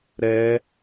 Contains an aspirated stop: no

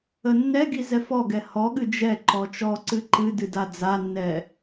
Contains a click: yes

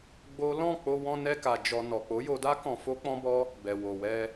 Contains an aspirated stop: no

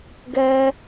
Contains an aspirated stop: no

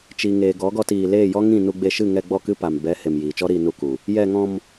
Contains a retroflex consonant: no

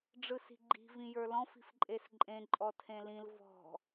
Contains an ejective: yes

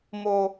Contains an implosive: no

